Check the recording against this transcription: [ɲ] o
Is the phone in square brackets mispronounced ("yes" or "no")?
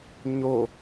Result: no